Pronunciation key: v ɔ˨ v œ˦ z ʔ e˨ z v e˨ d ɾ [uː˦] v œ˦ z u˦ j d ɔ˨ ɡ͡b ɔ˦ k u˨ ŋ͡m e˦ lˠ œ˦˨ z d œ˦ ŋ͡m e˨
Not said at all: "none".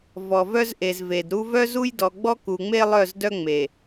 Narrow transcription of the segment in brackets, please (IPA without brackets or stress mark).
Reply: u˦